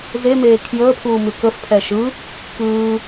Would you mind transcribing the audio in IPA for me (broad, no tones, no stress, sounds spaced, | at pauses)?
z e m eː kʰ j əː pʰ uː m ʉ k ə f pʰ ɛ ʃ ɯ | k ɯː